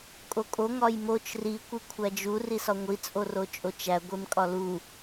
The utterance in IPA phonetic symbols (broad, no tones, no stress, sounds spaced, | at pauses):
kʼ o kʼ o ŋ ɒ j m o t͡ʃ r i kʷ i kʷʰ æ d͡ʒ u r i s ɒ ŋʷ i t͡sʼ o r o t͡ʃʼ o t͡ʃ æ ɡʷ e m kʼ ɒ l u